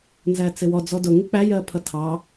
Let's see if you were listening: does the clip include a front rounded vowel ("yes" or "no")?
no